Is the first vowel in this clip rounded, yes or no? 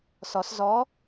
yes